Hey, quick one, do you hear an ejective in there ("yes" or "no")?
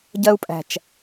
yes